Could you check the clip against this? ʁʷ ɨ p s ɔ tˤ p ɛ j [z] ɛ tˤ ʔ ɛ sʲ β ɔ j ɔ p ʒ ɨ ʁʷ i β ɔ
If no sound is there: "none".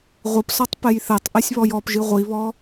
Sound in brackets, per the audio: θ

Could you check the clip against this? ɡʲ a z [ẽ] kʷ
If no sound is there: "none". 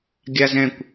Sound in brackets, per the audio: ɛ̃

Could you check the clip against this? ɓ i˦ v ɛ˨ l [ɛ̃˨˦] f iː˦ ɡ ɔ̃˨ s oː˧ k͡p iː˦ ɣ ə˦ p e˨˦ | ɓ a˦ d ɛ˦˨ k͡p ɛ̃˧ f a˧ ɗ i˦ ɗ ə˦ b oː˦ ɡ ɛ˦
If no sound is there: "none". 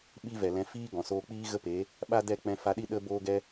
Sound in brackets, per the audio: ɛ̃˨˦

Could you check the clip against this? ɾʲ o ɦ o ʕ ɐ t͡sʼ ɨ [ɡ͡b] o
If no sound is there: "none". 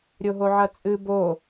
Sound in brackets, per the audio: b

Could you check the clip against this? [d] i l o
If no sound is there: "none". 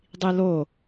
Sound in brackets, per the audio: dˤ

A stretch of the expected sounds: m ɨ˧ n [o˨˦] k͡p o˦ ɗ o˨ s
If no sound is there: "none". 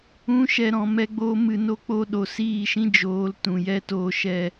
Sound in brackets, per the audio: o˦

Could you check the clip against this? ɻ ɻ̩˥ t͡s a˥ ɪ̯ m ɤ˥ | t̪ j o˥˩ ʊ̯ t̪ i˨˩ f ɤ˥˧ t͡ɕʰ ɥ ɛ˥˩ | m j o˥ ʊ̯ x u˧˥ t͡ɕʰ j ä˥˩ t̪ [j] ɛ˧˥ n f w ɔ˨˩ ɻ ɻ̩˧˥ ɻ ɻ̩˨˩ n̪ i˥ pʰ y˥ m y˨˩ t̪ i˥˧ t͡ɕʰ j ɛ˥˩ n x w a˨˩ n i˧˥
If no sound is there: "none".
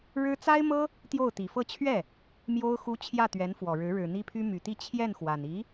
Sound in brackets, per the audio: ɥ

